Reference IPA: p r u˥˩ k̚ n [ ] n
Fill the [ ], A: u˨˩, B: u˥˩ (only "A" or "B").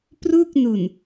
A